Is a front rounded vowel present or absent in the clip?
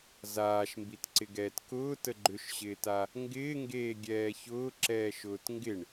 present